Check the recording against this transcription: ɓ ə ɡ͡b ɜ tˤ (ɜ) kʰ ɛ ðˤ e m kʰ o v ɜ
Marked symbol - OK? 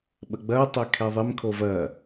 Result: no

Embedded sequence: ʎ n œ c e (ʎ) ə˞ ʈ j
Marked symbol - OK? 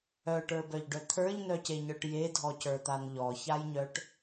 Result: no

